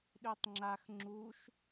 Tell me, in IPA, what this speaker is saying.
ɗ ø tˤ ŋ͡ǁ a x ŋ͡ǁ u ʃ

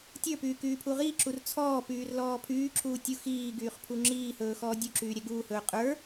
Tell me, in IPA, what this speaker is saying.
tʲ ə˞ p yː k yː pʰ u ʁ iː ǁ u r t͡sʰ ɔː p yː r l ɔː pʰ yː ǁ uː tʲ u x iː ɡ yː χ pʰ u ŋ͡ǁ iː h ɵː x ɔː dʲ u ǁ yː ɾʲ ɛ ɡ uː h ɵː qʼ ə˞

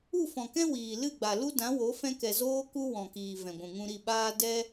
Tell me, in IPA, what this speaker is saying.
u˦˨ f ɔ̃˨ k ɛ̃˦ w iː˨ l ɨ˦˨ ɡ͡b a˨ l u˦ d ã˨˦ w o˨˦ f ɛ̃˦ k ɛ˧ z oː˦ k u˦ w ɔ̃˨ k iː˨ v ɛ̃˨ ɡʷ ũ˨ ŋ ũ˧ ɾ i˦˨ ɓ aː˦ d ɛ˦

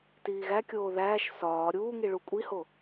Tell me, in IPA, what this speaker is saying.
t iː ɣ æ kʲ oː ð æː ʃ s ɒː ɾʲ uː ŋ i ɭ u kʷʼ i h o

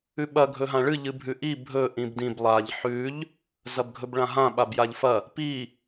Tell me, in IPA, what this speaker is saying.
ʉ ɓ ɐ ɡʱ ɵ ɦ ã ɭ ɨ ʎ ɨ bʱ ʉ ʔ i bʱ ɵ ʔ ĩ b d ĩ b lˠ a ʎ ħ ʉ ʎ | z ɐ b ɡʱ ɵ b ɭ ã ɦ ã ɓ a b j a ʎ f ɐ | p i

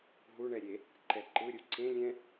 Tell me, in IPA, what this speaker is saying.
ɦ u ɳ ɛ ɾʲ e | ǃ ɛ ǃ ɯ ɾʲ u ǀ ẽ lʲ ɛ̃

